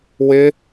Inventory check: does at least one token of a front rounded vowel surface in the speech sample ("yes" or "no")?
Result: no